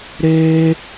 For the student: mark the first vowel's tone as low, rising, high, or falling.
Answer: high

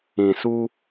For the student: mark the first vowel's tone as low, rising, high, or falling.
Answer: low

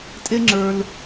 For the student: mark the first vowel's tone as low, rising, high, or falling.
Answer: high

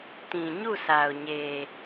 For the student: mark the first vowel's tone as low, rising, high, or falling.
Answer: low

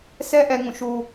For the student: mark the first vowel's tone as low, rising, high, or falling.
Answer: high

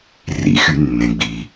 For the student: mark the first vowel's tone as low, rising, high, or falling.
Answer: low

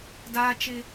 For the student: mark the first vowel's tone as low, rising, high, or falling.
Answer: high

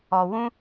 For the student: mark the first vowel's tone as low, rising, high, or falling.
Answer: low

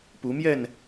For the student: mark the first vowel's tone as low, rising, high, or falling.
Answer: rising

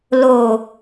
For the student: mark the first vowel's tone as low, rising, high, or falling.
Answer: low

